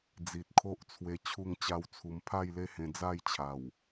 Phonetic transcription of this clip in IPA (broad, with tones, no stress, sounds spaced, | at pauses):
d͡z i˨ t̚ kʰ o˦ ʔ t͡sʰ w e˧ t͡ɕʰ u˥˧ ŋ t͡ɕ a˦ w t͡sʰ u˧ m pʰ a˥˧ j l e˦ h ẽ˧ d͡z a˥˧ j t͡ɕʰ a˨˩ w